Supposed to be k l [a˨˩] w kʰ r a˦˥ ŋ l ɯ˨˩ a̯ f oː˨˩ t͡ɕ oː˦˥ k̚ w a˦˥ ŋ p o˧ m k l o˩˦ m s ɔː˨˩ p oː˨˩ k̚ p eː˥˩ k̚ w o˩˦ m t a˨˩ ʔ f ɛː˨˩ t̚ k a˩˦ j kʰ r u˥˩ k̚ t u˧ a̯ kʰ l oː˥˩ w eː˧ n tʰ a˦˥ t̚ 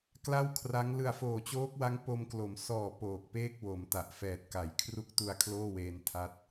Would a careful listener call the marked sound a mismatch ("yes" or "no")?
yes